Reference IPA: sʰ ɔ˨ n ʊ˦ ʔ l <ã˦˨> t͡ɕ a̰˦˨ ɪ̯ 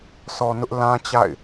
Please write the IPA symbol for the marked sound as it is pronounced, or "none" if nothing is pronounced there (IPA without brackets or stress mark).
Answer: ã˦